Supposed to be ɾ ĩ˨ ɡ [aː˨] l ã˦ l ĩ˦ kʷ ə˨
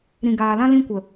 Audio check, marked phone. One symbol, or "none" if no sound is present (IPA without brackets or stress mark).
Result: aː˨